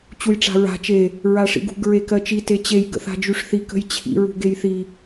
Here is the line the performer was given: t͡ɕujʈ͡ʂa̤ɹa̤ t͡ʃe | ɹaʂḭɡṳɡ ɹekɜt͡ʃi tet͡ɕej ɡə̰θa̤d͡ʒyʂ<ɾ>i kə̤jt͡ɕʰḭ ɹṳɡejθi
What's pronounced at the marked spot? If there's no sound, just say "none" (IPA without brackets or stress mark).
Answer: θ